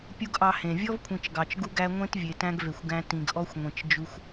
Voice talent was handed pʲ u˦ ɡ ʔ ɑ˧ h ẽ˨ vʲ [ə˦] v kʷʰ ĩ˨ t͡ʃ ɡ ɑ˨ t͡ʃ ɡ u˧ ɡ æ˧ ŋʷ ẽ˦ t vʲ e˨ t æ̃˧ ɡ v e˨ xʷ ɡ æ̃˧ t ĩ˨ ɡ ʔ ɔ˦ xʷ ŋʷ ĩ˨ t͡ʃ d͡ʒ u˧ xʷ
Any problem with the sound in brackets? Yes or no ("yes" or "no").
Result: yes